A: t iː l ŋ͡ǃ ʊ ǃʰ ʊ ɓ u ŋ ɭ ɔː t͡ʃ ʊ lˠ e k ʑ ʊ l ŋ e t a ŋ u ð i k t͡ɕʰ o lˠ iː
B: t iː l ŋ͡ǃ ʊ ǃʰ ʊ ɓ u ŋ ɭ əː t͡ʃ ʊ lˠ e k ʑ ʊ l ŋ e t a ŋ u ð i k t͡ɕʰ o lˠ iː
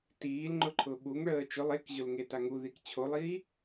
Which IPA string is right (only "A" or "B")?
B